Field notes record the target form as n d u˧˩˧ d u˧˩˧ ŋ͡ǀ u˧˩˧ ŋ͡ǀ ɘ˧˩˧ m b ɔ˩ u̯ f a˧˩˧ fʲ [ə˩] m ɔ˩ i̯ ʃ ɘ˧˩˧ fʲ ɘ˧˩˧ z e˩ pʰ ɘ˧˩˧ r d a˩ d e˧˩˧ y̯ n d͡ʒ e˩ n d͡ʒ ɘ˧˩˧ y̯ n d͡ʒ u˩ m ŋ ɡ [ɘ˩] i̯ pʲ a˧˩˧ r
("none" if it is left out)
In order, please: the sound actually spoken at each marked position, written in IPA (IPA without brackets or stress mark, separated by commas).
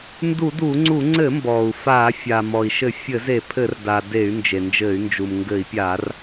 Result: a˩, ɘ˧˩˧